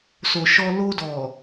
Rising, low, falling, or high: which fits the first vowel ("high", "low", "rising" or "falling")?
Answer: low